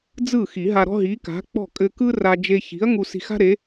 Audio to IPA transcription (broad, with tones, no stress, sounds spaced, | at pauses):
d͡z ɯ˥˨ x i˨˩˦ ɦ a˧ ɾ ɔ̤˥ ɦ i˨˥ k a̤˨˥ k͡p ɔ̤˥˨ kʼ ɘ˧ k ɯ˥ r a˧ d͡ʒ e˧ ç i̤˨˥ ɐ̯ ŋ u˧ s i̤˧ x a̤˥ ɾ e˨˥